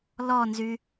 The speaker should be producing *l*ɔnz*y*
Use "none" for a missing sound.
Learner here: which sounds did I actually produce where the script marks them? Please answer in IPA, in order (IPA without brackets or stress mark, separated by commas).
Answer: l, y